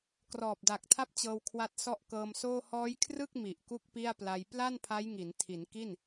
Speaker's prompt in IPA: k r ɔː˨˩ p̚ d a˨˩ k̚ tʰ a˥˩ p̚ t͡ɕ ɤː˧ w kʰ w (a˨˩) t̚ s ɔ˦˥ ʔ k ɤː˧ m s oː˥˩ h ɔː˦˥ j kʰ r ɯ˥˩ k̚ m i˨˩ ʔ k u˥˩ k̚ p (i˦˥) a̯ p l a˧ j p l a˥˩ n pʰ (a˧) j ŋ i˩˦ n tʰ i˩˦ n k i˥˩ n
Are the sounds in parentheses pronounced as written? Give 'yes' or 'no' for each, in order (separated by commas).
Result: no, no, no